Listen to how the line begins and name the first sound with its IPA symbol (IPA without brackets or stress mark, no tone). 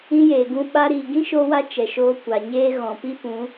ĩ